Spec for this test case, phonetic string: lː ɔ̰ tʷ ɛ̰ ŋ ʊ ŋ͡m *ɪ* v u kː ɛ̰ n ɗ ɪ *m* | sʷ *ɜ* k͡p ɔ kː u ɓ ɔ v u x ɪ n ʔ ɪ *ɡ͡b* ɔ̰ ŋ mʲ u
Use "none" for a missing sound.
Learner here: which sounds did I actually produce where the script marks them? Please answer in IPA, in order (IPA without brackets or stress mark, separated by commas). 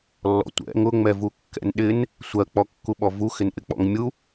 ɛ, n, ɜ, k͡p